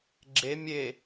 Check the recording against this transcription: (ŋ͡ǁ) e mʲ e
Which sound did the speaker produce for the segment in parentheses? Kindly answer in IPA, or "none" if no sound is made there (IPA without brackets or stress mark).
ɡ͡ǁ